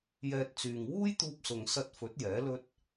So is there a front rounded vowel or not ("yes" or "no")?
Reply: yes